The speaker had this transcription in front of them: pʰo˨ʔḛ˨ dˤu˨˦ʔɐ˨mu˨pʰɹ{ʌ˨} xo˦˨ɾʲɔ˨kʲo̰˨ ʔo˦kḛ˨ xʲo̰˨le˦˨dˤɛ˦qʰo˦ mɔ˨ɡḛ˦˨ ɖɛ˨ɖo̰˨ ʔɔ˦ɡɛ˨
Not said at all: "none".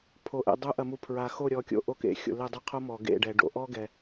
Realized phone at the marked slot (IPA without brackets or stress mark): a˨